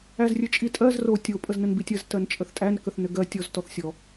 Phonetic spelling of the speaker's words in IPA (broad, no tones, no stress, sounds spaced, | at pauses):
æ z rʲ ɘ t͡ʃʼ i tʼ ɜ z r o tʲ o pʼ ə z n ə n b i tʲ ɜ z t ɜ n t͡ʃʼ ə θ tʼ æ n k ə θ n ɘ ɡ ɜ tʲ ɔ z t ɔ θ sʲ ɔ